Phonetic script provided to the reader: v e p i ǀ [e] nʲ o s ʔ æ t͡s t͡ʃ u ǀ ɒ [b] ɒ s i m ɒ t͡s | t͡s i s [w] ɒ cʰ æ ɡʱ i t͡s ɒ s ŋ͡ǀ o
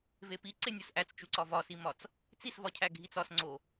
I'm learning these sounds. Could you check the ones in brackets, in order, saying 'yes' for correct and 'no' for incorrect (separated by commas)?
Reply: yes, no, no